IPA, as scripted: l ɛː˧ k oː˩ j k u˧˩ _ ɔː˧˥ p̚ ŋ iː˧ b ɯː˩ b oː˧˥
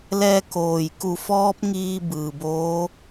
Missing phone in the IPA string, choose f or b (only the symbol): f